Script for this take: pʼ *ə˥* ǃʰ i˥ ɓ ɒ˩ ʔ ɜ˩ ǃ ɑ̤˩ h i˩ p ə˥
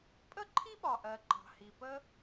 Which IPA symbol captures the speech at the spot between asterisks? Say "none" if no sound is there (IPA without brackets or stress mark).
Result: ə˥